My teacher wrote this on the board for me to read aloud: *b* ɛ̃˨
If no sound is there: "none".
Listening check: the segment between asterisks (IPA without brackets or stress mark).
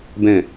b